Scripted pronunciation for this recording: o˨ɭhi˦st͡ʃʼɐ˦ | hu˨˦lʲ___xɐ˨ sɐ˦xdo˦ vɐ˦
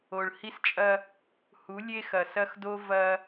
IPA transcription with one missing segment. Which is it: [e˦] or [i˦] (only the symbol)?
e˦